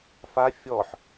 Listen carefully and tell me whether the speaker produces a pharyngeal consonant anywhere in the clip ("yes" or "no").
yes